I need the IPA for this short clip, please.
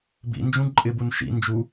b ḭ n d͡ʒ ũ ǃʼ ɪ b u n ʃ ḭ n d͡ʒ u

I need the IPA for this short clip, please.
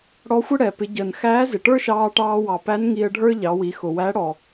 ɽ ɔ˧˥ xʷ ə˥ ɽ ɛ˩ p ɪ˩˧ ɟ əː˩ n x æː˧˥ z ɪ˩ ʈ ə˞˥ ʃ ɑː˧ ʈ ɑː˧ w ɑ˩ p æ˧˥ n ŋ i˧ ə̯ ɖʱ ə˞˥ ʎ ɑ˩˧ w i˩˧ x ʊ˩ w æ˧˥ ɽ ɔ˩

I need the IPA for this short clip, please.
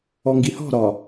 ɔ ŋ ɡ i h ɔ̤ ɾ ɒ

